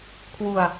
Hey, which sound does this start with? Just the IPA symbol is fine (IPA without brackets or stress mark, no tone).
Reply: kʰ